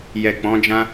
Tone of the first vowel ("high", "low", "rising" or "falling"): low